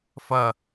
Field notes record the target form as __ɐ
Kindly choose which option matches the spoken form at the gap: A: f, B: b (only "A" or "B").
A